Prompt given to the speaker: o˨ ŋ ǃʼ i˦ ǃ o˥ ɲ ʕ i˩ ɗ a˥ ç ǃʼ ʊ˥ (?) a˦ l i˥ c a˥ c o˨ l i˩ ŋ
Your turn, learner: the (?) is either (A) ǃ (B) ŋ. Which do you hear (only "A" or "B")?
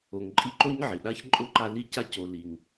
A